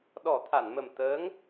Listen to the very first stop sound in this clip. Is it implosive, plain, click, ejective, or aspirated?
implosive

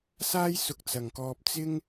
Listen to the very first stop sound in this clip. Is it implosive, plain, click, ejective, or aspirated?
plain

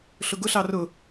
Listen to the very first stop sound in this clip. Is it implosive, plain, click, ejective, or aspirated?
plain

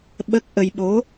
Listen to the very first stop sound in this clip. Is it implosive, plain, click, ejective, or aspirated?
implosive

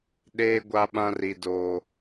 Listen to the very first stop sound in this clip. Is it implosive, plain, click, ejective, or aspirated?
implosive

